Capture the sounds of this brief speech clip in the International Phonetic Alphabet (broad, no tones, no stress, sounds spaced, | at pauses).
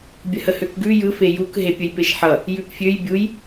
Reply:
bʲ ə h ə h ø k ɡ ʉ j ɯ f e j u k ɦ e pʲ ə j p e ʃ ħ ʌ | j ʉ p fʲ ø j bʲ u j